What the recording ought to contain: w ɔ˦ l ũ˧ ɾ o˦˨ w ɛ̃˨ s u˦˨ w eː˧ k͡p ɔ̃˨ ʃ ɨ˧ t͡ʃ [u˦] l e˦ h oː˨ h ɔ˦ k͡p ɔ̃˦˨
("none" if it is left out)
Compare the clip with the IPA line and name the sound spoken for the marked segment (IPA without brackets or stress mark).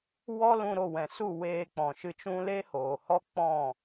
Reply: ũ˦